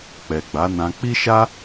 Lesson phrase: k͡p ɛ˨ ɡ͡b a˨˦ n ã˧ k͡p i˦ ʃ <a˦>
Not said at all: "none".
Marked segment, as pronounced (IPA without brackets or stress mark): a˦